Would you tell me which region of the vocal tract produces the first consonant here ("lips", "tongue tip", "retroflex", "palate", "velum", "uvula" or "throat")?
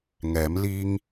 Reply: velum